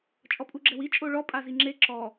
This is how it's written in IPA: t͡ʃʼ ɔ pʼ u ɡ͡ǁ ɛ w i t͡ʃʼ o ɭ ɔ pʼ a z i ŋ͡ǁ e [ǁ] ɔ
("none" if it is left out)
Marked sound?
ǁ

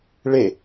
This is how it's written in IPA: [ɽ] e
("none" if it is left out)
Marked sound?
ɭ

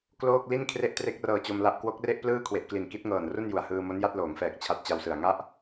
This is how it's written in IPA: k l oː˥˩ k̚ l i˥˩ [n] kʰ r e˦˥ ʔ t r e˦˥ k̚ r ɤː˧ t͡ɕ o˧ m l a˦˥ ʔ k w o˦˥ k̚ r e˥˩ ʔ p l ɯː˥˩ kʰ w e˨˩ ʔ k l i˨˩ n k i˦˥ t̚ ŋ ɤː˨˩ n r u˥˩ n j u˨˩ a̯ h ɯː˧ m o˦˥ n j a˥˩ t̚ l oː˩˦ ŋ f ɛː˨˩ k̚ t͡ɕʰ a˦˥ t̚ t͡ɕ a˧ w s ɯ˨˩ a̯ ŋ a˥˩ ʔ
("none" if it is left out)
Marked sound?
n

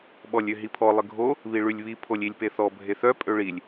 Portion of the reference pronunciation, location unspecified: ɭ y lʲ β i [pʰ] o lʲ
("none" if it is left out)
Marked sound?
pʰ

